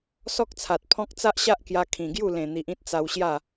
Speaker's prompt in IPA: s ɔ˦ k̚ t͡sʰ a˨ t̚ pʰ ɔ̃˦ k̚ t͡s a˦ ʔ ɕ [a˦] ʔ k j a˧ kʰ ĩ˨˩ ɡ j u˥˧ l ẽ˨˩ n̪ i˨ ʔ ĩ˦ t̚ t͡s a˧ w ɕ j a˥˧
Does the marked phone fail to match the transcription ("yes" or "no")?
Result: no